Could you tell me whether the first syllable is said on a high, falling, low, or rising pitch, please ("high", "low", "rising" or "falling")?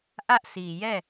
high